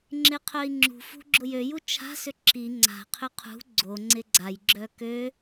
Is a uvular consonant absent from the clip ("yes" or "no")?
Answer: no